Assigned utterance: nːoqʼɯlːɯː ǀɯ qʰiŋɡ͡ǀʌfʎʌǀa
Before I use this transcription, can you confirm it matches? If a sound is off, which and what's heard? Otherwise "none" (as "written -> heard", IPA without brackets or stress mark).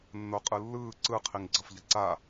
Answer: none